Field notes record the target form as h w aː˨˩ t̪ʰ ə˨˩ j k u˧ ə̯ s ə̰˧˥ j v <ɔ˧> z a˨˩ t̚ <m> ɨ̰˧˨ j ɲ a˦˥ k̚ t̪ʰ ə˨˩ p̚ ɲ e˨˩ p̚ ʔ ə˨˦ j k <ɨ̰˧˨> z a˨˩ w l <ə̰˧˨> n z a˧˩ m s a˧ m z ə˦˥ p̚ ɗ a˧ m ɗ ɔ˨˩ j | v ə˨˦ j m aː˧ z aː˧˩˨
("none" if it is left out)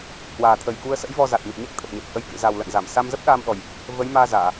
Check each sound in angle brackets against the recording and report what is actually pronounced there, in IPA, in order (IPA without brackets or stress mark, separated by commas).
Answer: ɔ˧, m, ɨ̰˧˨, ə̰˧˨